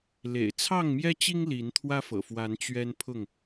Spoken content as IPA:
lḛ˨˩ɪ̯t͡sʰɑ˥˨ŋmjɛ˦t͡ɕi˦ŋ li˨˦nt̪ʰwä˦fɤ̰˨˩fwa˨˦n t͡ɕɥɛ˦npʰʊ˥˨ŋ

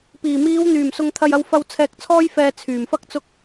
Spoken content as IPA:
piː˨˩miː˨˧w n̪yː˨˩msʊ˨ŋ t̪ʰɐ˨jɐ˨wfɐ˨w t͡sʰɛː˨k̚t͡sʰɔː˧jfɛː˨ t͡sʰyː˨˩mfɐ˥k̚t͡sʊ˥k̚

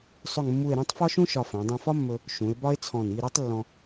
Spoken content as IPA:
sˤɵ˥˧ŋmːu˥˧e̯ ɾũ˥˧tˤfɒ˥ʃũ˥ ʃɒ˧fæ̃˩˧ dˤũ˧fɒ˥mːɵ˧ | ʃũ˩˧e̯bɒ˥e̯t͡sʰɔ̃˧˩ni˥˧ ɾi˥tˤlːɔ̃˧

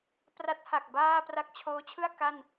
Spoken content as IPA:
pra˦˥t̚ha˨˩k̚ baː˥˩ pra˦˥k̚t͡ɕʰoː˦˥t͡ɕʰɯ˥˩a̯ ka˥˩n

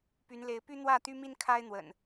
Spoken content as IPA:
py˨˦nle˨˦ɪ̯ py˦n̪wä˥˨t̪y˦mi˦n kʰa˦ɪ̯n̪wə̰˨˩n

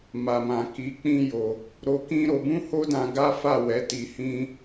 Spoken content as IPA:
ma˨mã˨ ki˨˦k͡pĩ˦jo˧ | ɾo˧kĩ˦ ɾo˧bũ˦ho˦dã˧ ɡa˦fa˦˨wɛ˨˦ ti˧hĩ˦

